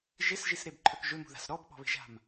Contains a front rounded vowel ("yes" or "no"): yes